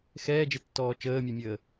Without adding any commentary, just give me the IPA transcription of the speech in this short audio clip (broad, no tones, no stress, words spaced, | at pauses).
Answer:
xɛːd͡ʒetːɔː t͡ʃəːmʲœmʲəː